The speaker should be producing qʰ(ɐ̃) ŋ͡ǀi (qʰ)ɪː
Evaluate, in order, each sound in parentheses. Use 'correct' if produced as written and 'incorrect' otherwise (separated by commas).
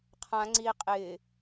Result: incorrect, incorrect